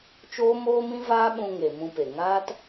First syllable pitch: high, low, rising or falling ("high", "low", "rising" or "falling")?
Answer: high